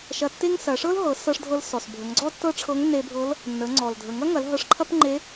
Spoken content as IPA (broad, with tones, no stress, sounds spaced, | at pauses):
ʃ ɐ˧ tː e˥ ŋ s ɐ˩˧ ʂ ɤ˥ l ɦ ɤ˩˧ s ɤ˧ ʂ dʱ ɤ˧ l s ɔ˩ s bʱ ə˩˧ ŋ ɡ͡ǀ ɔ˥ tː ɤ˥ ʈ͡ʂʰ ɤ˧˥ ŋ nː e˧ bʱ ɤ˧˥ l | nː ə˩˧ ŋ͡ǀ ɔ˩ l dʱ ə˩ ŋ ɐ˥ ŋ ɐ˩˧ l ɦ ɤ˧ ʂ ǃʰ ɐ˥ p ŋ͡ǃ e˧˥